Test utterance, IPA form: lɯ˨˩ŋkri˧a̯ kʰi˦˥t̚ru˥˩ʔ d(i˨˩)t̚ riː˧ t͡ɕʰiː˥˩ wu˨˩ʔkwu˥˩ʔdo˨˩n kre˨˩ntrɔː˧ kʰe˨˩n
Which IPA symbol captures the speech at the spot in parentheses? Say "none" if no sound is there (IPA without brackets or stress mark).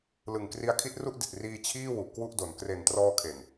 i˨˩